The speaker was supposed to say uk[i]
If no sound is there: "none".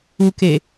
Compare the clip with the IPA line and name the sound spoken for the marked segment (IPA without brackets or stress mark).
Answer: e